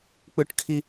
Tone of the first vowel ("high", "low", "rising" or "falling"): high